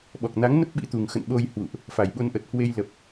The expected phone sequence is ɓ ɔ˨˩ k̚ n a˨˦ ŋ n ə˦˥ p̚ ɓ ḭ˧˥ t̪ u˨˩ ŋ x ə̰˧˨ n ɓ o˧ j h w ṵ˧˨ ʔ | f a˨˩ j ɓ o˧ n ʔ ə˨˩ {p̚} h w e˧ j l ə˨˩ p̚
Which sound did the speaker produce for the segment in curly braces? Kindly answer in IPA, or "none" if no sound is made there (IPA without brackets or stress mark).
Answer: t̚